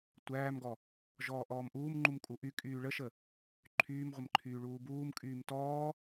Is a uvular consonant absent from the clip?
no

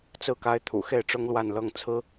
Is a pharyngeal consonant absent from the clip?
yes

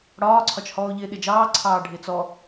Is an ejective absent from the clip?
yes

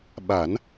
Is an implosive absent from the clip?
no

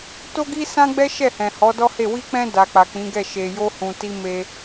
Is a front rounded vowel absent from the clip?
yes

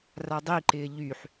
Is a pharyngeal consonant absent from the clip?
no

